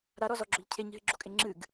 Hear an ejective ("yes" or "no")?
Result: yes